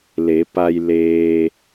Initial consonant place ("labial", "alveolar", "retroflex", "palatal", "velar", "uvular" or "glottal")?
alveolar